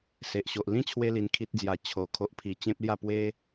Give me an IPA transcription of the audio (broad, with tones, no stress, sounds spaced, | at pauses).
s e˨ ʔ ɕ o˨ ʔ l ĩ˥˧ t͡ɕʰ w e˧ l i˧ n kʰ i˦ t̚ d͡z j a˧ t͡ɕʰ o˧ kʰ o˦ ʔ pʰ i˧ t͡ɕ ẽ˦ p̚ l j a˥˧ p w e˦